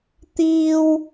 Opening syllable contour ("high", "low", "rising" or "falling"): high